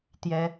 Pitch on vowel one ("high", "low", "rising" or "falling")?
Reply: high